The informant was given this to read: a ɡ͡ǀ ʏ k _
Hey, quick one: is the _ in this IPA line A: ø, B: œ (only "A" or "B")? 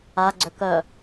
B